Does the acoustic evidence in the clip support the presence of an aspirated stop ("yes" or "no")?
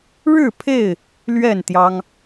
yes